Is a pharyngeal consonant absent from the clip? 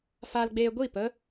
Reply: yes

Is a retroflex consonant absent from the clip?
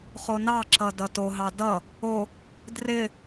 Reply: yes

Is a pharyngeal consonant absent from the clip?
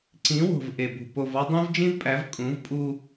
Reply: yes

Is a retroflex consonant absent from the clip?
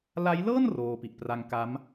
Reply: yes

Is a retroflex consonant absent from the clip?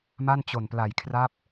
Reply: yes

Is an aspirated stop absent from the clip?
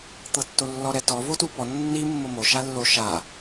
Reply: yes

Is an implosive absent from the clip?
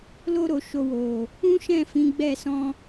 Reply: yes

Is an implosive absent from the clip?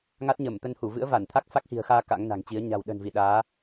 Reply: no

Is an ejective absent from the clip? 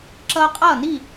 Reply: no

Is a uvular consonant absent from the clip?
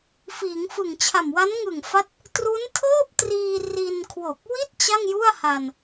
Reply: yes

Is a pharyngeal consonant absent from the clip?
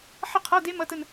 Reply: no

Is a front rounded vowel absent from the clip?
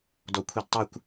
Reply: no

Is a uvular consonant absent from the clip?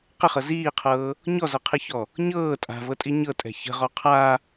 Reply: no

